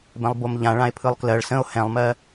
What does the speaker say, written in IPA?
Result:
b ɛ̃ lˠ b o m ʎ ã ɭ ã e̯ pʰ ɯ lˠ k l ɜ ɭ s ə̃ o̯ h ɛ̃ lˠ m ɜ

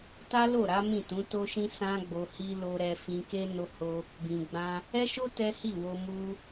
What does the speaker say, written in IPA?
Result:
t a˦ l o˦˨ ɾ a˨˦ m ĩ˦˨ t ũ˨˦ t o˦ ʃ ĩ˦ s ã˦ ɡ͡b o˧ h i˦ l o˧ ɾ ɛ˧ f ĩ˧ k e˦ n o˧ h o˧ | b ĩ˨ ɡ͡b ã˧ | ɛ˦ ʃ o˦ t ɛ˦ h i˦˨ w o˧ m u˦

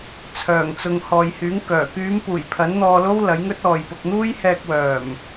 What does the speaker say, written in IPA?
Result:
t͡sʰ œː˨˩ ŋ t͡s ʊ˨ ŋ h ɔː˨ j h yː˨˥ ŋ k œː˨˩ k yː˨˧ m p uː˨˩ j pʰ ɐ˨˥ n n̪ ɔː˧ l o˥ w l ɐ˨˥ j ŋ ɵ˥ t̚ ɔː˨ j p ʊ˧ k̚ n̪ uː˥ j h ɛː˧ k̚ w œː˨˩ m

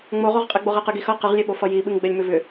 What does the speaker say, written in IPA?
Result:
ŋ͡m o ʁ o ʁ qʼ ɛ ɡ͡b o ʁ ɛ q ɨ ɡ i x ʌ q ɨ ʁ lʲ e ɓ o f ʌ j i ɓ ɨ ŋ ɡ͡b ɛ lʲ m ʏ v ʏ

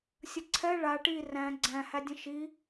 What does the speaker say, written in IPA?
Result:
sʲ ə ǀʰ ɛ ɭ a ʈ i r æ̃ ɡ͡ǀ æ̃ h æ dʲ ə̃ ʃ i

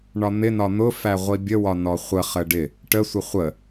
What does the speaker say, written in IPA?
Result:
ɳ ɒ n̪ ɪ n ɒ n̪ ʊ f æ ʁʷ i bʲ ə w ɒ n ɔ χʷ ə χ ə ɖ ɪ | ʈ ə sʷ ɪ χʷ ə

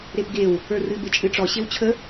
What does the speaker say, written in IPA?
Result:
ɾ e p ɡ e w | ə˞ r ɨ b e t͡ʃʼ ɨ ʈ͡ʂ ɔ ɕ e w t͡ɕʰ ə

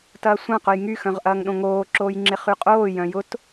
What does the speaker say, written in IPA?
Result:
t ɐː sʷ ã q ʊ j ŋ y x œ̃ ʁ ʔ ɐː ŋ ɗ õ ŋ oː ǁ oː j ŋ͡ǁ ɪ χ y qʼ oː j œ̃ j ʊ t

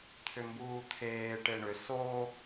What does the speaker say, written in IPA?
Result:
t̪ʰ ʏ m b uː t̪ʰ eː ʈ e ɳ ʏ s o

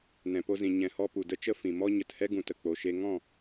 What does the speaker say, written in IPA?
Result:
n ɛ̃˨ p o˧ z ĩ˨ ɲ ɛ̃˨ h ɔ˧ p u˨ d ə˦ t͡ʃ ə˦ f ĩ˨ m ɔ˦ ɲ ə˨ t h ɛ˦ ɡ ũ˨ t ə˨ k͡p o˨ ʃ e˧ ŋ ɔ̃˦˨

